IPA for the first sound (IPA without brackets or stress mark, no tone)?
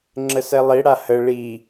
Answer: ŋ͡ǁ